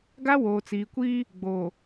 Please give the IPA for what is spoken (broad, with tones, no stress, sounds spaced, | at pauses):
ɡ a˦ w oː˨ t͡s iː˨ kʷ iː˦ | ɡ͡b oː˨